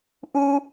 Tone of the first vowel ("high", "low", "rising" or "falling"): high